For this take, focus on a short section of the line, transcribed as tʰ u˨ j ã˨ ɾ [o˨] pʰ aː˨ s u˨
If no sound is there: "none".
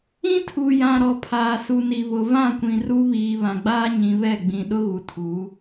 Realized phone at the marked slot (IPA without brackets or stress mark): ɔ˨